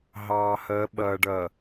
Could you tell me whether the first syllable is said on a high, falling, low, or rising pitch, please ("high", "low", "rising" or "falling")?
low